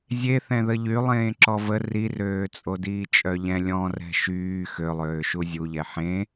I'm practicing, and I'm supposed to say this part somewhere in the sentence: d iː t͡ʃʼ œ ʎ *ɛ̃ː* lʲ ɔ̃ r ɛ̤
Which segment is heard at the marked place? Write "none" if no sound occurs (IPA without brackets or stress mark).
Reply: ɛ̃